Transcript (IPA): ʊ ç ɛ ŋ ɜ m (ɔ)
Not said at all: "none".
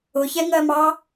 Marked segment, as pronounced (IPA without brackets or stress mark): ɑ